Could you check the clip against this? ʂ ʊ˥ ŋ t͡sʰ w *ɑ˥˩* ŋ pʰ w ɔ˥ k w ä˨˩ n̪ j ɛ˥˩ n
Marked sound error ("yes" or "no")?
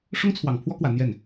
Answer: yes